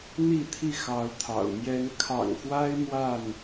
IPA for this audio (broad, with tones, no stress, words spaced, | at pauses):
n̪i˥˨t̪ʰi˥˨xɑ˨˦ʊ̯ t̪ʰɑ̰˨˩ʊ̯mjɛ˦n kʰɑ̰˨˩ŋxwa˦ɪ̯ mwa˥˨n